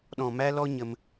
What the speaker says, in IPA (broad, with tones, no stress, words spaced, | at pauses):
ɗɔ̃˨mæ˧lɔ˧ ɲə˧m